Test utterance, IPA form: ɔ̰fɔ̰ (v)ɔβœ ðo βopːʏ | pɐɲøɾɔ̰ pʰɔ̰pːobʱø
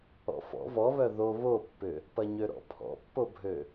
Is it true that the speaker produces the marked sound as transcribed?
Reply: yes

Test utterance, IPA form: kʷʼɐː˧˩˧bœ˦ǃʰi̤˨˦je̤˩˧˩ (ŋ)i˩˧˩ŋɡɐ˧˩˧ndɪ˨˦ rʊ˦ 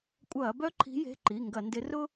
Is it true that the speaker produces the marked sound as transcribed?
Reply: no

